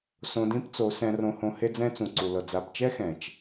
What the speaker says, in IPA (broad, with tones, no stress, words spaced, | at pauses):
sõ˧dĩ˦pt͡so˨˦ sɛ̃˧rõ˧hõ˧ he˦d͡zɛ̃˦ t͡sũ˨ǀu˨lɤ˨ d͡za˨bt͡ʃɛ˦ xɛ̃˨t͡ʃ